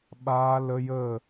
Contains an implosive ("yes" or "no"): yes